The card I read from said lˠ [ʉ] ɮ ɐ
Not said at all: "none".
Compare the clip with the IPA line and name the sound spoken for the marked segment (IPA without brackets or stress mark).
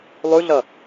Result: ʉ